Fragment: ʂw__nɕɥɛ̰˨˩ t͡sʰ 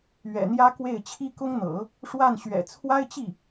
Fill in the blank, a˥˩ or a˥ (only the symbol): a˥˩